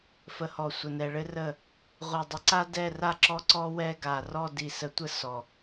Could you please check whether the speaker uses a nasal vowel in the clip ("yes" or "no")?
no